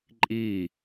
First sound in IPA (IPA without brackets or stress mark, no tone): ǃʼ